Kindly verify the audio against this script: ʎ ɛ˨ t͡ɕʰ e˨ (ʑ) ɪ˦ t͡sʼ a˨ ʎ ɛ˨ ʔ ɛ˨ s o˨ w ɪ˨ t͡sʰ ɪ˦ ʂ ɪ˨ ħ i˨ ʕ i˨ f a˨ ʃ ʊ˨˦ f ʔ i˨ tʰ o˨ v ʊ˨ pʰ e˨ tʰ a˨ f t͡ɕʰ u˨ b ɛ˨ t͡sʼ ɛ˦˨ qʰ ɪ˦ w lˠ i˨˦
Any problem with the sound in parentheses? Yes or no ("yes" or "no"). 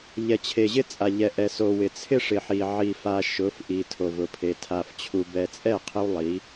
no